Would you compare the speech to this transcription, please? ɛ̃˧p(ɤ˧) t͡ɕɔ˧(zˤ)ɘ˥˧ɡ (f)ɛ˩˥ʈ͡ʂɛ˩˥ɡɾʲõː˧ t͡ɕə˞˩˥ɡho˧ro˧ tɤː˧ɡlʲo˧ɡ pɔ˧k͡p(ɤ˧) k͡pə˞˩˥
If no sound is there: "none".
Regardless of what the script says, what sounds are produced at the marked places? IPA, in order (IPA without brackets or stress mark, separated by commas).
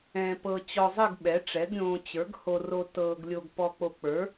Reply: ɤ˧, zˤ, ɓ, o˧